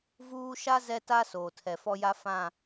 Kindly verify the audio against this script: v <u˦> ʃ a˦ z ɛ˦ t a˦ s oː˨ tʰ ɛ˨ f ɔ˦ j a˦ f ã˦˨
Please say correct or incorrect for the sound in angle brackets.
incorrect: uː˦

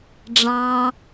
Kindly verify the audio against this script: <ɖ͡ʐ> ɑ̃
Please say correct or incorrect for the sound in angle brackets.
correct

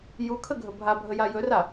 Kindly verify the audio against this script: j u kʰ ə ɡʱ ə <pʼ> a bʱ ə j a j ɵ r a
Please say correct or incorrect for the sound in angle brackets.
incorrect: bʱ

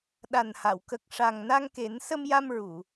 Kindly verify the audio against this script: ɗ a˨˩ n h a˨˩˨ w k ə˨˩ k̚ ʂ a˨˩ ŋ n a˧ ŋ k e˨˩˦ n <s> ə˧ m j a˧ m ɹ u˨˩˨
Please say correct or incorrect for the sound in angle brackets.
correct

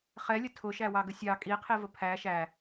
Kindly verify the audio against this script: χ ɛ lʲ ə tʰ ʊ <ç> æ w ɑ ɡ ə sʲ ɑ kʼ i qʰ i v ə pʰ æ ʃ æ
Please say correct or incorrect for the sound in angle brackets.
incorrect: ʃ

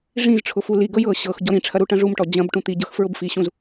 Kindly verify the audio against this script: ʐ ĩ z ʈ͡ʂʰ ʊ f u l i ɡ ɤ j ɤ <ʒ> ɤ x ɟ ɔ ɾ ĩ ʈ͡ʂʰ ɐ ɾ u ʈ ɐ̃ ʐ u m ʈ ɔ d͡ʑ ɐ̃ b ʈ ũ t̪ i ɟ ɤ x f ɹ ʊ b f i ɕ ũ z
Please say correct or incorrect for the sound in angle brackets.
incorrect: ɕ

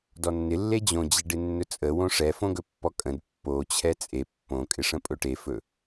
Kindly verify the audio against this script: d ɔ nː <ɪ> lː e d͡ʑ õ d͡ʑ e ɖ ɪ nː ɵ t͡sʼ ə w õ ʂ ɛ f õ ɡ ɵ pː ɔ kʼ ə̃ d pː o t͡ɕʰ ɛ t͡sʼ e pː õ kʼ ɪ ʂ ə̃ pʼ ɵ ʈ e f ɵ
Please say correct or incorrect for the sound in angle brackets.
correct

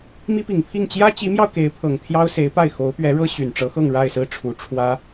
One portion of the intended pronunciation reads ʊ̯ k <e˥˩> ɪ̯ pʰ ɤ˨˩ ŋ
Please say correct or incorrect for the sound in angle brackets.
incorrect: e˧˥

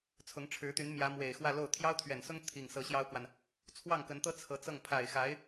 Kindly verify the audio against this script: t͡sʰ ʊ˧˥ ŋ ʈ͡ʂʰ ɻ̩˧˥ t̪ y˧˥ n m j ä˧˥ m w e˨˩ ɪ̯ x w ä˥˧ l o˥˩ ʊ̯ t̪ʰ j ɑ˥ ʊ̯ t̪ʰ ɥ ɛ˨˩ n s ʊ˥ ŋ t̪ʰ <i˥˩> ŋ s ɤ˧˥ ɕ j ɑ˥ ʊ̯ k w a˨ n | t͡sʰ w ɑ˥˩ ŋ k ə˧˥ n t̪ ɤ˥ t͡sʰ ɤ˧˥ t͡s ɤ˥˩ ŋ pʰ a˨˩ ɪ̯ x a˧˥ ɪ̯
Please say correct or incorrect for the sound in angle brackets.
correct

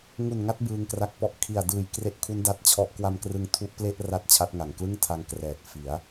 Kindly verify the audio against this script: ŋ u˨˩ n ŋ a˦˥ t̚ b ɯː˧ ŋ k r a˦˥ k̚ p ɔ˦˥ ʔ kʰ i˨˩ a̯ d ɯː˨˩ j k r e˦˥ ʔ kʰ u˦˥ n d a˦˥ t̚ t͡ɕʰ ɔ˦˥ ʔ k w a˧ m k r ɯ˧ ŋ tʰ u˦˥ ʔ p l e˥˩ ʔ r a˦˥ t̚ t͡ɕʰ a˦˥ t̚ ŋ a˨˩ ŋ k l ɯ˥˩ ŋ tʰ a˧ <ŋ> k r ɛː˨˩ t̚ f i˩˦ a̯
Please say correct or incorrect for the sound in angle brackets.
correct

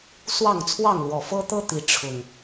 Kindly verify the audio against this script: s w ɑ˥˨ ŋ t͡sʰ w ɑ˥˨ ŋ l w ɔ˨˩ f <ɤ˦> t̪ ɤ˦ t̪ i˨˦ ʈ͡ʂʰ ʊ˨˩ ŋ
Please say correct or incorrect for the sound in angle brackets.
correct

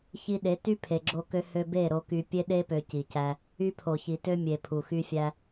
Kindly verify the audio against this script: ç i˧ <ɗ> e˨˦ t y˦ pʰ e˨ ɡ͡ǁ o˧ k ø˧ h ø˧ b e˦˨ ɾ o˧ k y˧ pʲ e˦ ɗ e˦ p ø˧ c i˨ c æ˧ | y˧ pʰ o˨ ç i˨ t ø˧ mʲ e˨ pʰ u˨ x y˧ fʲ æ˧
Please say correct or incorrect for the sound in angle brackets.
correct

